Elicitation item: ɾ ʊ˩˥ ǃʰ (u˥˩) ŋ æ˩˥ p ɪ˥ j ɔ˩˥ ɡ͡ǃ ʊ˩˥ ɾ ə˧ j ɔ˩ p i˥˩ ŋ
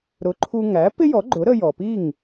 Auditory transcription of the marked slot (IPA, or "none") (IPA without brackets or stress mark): u˧